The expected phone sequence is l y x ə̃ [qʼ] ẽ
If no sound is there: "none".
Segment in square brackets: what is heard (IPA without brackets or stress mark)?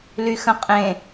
qʼ